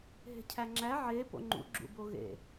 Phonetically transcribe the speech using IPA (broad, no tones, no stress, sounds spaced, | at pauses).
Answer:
ɦ e̤ cʰ æ ŋ͡ǁ æ ʕ e p o̰ ŋ͡ǃ ṵ ɡ͡ǁ ṵ b o ɣ ḛ